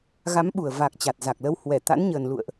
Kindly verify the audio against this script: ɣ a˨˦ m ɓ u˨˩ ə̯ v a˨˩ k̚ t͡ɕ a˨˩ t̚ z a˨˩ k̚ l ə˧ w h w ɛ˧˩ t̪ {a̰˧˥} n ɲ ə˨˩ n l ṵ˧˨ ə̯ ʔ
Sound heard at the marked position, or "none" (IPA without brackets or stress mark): a̰˧˥